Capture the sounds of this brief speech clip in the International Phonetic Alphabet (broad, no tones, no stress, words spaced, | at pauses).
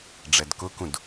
ɖ͡ʐɛdkʊkũd